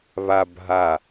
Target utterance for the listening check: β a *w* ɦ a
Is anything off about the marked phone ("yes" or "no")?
yes